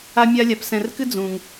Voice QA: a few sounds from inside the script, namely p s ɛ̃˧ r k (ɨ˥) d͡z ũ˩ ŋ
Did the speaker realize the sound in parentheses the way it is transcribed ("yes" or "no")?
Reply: yes